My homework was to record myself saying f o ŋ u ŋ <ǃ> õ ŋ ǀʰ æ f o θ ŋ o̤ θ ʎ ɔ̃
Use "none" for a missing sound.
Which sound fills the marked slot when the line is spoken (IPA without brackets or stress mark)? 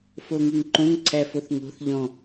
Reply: ǃ